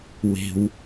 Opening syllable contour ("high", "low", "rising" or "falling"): low